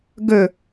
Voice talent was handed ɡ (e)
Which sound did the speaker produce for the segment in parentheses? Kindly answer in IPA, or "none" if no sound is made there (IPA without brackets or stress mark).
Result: ø